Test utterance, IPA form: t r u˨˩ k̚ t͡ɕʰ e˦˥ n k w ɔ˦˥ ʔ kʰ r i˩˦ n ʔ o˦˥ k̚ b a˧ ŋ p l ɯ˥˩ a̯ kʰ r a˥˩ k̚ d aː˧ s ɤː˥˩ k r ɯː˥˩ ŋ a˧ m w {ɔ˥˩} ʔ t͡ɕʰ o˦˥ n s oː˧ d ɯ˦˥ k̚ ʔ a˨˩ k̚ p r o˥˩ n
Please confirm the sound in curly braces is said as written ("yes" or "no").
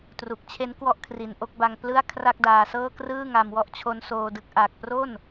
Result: yes